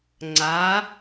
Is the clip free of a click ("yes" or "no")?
no